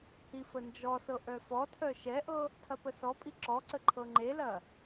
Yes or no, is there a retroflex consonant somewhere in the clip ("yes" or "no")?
no